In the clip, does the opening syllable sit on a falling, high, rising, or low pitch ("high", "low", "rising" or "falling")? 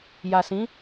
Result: low